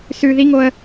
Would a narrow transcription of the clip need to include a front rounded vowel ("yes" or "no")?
no